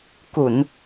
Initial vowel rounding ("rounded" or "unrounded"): rounded